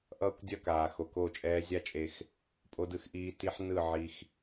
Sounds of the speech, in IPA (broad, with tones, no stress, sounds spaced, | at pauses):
ʔ ʌː˦ kʷ dʲ ʌ˦˨ k aː˨ x o˨ k o˦˨ t͡ʃʼ ɛː˦ zʲ a˦ t͡ʃʼ e˧ x | pʼ o˧ d ɯ˧ x ʔ iː˧ t i˦ ħ n ɯ˦˨ ʕ i˧ x